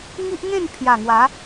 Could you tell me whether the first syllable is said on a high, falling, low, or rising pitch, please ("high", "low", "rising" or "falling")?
high